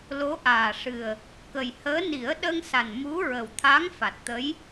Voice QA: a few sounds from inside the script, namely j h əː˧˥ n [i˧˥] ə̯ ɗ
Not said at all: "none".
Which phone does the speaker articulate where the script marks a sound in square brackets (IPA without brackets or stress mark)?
i˨˩˦